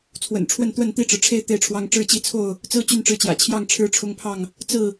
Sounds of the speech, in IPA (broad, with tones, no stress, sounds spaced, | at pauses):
t͡sʰ w ə̰˨˩ n ʈ͡ʂʰ w ə˥˨ n t̪ w ə˥˨ n t̪ i˥˨ ʈ͡ʂ ɻ̩˩ ʈ͡ʂʰ e˦ ɪ̯ t̪ e˥˨ ɪ̯ ʈ͡ʂʰ w ɑ˦ ŋ ʈ͡ʂ ɻ̩˥˨ t͡ɕ i˥˨ t͡sʰ o˥˨ ʊ̯ | t͡s ɹ̩˦ t͡ɕ y˥˨ n ʈ͡ʂ ɻ̩˦ t͡ɕ j ä̰˨˩ t͡ɕʰ j ɑ˥˨ ŋ ʈ͡ʂʰ ɻ̩˥˨ ʈ͡ʂʰ ʊ˦ ŋ pʰ ɑ˥˨ ŋ | t͡s ɹ̩˥˨